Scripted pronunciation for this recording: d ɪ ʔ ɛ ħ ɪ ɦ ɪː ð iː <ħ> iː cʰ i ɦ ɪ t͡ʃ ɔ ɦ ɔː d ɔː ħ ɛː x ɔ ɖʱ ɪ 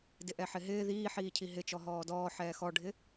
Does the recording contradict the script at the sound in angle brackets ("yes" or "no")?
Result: no